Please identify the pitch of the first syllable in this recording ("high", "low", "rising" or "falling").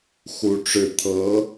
high